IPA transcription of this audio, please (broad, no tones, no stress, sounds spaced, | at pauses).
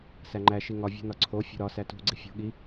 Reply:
s æ ŋ͡ǃ æ ʃ i ŋ ɒ vʲ ṳ n ɒ ǀʰ o fʲ o̤ ɾ ɒ s æ t ṳ ɡ͡ǀ i fʲ o̤ ɠ i